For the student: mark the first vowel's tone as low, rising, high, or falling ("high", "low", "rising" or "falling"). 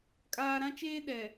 high